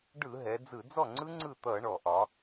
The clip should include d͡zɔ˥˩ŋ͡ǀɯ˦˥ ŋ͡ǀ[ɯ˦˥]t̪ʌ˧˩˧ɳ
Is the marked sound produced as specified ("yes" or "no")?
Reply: no